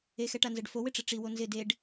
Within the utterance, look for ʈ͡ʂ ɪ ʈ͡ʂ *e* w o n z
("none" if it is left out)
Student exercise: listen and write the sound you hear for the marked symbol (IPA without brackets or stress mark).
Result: i